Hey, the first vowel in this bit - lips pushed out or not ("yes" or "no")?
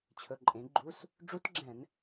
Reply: yes